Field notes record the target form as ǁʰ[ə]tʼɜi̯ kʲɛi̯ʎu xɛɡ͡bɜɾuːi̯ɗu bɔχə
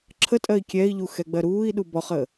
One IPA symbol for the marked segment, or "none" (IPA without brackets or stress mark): ə